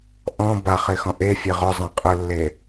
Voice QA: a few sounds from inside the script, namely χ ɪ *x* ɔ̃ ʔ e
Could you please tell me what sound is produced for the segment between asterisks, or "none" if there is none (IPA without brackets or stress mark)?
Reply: x